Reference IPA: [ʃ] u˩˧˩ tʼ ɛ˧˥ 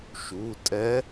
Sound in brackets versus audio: correct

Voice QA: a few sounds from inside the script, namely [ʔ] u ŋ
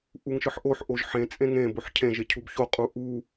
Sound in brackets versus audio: correct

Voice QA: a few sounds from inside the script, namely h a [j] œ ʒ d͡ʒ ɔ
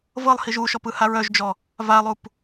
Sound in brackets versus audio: incorrect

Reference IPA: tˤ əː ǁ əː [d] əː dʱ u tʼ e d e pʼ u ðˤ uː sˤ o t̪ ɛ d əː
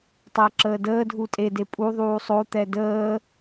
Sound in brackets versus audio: correct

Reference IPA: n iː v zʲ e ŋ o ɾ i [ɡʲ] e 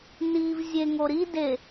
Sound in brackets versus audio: incorrect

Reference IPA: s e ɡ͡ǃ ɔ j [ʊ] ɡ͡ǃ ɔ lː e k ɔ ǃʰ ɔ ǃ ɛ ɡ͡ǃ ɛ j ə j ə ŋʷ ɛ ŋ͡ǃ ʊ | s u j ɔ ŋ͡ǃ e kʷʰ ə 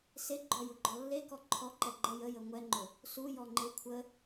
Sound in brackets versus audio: correct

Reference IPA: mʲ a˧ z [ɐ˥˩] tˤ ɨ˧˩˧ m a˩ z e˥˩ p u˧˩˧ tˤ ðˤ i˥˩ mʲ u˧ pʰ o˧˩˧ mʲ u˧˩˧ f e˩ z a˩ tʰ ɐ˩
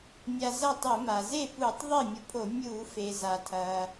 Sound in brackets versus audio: correct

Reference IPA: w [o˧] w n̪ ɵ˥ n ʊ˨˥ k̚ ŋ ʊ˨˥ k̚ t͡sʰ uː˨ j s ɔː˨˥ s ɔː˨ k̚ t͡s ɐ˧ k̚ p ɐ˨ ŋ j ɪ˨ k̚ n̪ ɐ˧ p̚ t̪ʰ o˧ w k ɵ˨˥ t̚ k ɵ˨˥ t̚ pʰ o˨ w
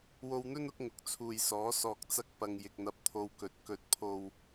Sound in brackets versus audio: correct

